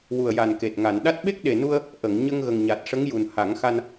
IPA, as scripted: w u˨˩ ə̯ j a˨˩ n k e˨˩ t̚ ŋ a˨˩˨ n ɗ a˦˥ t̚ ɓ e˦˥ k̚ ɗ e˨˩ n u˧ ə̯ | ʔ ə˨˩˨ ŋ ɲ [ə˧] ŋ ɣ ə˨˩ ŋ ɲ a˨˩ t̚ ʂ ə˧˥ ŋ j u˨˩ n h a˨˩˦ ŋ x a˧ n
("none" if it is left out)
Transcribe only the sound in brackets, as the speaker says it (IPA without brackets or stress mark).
ə˧